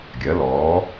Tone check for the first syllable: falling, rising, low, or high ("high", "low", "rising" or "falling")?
rising